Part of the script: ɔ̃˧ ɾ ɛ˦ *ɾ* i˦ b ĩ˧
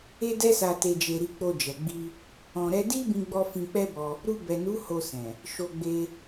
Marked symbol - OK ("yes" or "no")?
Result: no